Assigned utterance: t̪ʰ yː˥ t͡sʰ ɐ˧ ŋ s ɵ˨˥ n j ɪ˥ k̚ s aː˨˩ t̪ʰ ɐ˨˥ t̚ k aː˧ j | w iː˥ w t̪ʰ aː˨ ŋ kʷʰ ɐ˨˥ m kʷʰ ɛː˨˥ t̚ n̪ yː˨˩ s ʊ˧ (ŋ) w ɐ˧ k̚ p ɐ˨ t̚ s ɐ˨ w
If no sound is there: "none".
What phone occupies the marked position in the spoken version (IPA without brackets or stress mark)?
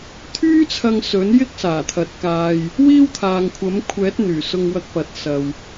ŋ